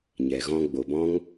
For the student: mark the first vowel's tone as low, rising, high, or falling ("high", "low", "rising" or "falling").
low